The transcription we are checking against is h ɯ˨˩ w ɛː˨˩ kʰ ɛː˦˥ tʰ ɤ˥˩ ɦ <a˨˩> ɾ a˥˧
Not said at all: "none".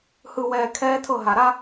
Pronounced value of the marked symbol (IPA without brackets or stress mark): a˨˩